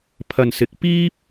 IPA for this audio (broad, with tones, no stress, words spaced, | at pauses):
pʰɐ˨nsɪ˨˥k̚ piː˥p̚